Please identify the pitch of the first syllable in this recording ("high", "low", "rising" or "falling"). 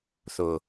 low